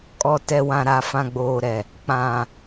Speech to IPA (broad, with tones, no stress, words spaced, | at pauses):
kʼɔ˨tɛ˨wã˨ ɾa˨fã˨ɡ͡boː˨ɾɛ˨ | k͡pã˨